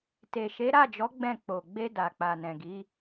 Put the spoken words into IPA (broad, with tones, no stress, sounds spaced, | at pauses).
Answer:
t e˨ ʃ e˨˦ ɾ a˦˨ d͡ʒ ɔ˨˦ ɡ͡b ɛ̃˦˨ k͡p o˨ ɡ͡b e˧ d a˨ k͡p a˨ n ɛ̃˨ ɡ i˨˦